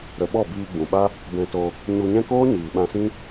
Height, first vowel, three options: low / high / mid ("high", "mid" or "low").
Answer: mid